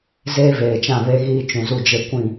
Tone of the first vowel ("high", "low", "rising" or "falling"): high